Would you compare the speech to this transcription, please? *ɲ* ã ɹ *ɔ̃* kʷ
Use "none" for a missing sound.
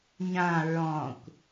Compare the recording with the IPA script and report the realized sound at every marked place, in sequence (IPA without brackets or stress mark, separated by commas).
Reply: ɲ, ɔ̃